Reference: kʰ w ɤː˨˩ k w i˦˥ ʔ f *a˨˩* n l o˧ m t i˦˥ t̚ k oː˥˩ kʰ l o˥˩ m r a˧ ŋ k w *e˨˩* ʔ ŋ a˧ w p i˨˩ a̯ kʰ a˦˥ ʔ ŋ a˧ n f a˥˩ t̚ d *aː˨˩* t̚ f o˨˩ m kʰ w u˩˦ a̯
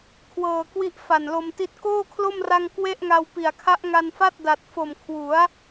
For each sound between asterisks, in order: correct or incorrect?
correct, incorrect: e˥˩, incorrect: a˨˩

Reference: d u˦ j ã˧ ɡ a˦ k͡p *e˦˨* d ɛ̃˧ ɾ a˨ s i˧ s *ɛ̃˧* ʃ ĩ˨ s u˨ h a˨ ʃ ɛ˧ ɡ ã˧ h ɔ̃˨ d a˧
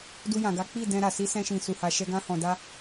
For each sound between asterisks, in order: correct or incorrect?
incorrect: i˦˨, correct

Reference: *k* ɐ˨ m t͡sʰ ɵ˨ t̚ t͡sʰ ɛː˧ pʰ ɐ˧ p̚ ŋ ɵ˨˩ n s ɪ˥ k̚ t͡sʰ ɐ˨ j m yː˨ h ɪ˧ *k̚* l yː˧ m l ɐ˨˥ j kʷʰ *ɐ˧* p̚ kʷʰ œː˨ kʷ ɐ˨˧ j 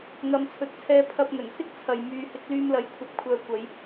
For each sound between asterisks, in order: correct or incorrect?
incorrect: ŋ, correct, incorrect: ɐ˨

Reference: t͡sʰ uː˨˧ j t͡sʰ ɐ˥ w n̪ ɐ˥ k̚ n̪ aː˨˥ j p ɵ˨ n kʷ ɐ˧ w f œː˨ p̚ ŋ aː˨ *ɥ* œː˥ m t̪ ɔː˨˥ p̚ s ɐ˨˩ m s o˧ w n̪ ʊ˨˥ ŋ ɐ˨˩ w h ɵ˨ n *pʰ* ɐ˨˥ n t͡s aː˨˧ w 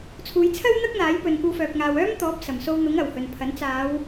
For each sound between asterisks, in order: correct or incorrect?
incorrect: w, correct

